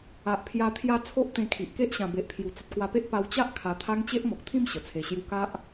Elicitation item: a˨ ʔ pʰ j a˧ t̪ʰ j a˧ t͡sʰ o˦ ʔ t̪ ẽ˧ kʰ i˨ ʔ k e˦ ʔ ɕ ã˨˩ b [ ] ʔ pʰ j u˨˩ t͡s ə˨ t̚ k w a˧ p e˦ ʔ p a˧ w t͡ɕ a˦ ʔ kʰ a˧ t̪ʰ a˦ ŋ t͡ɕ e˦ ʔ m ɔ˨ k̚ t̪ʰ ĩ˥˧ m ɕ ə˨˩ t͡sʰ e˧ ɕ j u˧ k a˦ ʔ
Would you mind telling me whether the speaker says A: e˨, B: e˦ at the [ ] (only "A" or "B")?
A